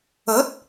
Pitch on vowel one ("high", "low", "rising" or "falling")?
rising